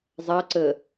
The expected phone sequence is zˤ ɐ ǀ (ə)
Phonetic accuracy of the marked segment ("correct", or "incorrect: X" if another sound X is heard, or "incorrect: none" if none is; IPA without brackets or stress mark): correct